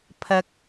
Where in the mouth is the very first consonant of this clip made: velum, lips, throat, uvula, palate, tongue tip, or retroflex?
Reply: lips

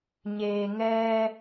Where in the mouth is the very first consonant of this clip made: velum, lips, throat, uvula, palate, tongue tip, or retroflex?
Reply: palate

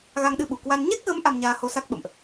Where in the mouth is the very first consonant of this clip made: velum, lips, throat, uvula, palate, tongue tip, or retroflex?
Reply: velum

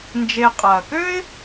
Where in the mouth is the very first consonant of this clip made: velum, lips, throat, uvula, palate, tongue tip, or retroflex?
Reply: tongue tip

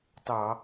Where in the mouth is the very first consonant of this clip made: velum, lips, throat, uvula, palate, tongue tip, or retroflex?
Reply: tongue tip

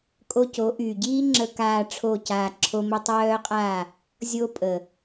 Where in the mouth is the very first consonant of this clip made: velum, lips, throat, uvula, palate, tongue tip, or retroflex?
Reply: velum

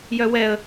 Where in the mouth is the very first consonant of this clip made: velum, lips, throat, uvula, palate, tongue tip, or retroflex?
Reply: palate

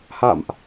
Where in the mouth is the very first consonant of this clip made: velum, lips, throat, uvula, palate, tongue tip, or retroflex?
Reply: throat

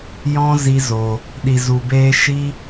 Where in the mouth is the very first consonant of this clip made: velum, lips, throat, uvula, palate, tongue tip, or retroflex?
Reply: palate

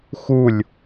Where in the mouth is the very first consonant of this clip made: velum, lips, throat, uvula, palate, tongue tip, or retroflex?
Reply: velum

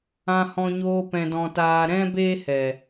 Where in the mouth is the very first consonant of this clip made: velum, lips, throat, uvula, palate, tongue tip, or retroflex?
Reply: throat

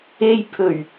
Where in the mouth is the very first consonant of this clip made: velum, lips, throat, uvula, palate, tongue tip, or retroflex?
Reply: palate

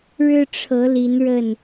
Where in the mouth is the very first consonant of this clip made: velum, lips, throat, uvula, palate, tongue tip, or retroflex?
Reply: retroflex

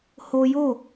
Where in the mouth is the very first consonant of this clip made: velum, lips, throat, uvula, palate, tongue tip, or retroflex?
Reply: throat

